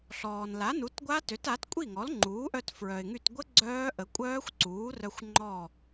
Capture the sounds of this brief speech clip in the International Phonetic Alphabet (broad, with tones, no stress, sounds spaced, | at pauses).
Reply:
ɬ ɔː˩ n l a˩˥ n u˩˥ t ɡʷ a˦˥ t ø˩˥ t a˩˥ t kʷʼ i˥˩ ŋ ɔ˩˥ l ŋ͡ǃ uː˩˥ ʔ œ˧ t f ɹ œ˩ ɪ̯ ŋ y˧˩ t ɡʷ ə˦˥ ɡ͡ǀ œː˦˥ ʔ ə˩˥ kʷʼ œː˦˥ xʷ ǀ uː˩˥ r œ˧ xʷ ŋ͡ǃ ɔ˧˩